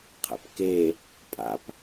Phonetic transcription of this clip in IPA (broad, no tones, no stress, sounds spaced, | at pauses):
qʰ ɛ̰ p k e | pʼ a̰ p